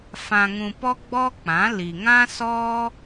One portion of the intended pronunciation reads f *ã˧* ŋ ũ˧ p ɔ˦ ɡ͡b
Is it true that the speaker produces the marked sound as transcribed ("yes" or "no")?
yes